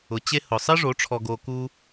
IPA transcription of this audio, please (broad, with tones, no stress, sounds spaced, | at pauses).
ʊ˨ t͡ɕ e˧ h ʊ˨ sˤ ɪ˦ ʐ o˨˦ ʈ͡ʂʰ ɔ˧ ɡ o˧ k u˦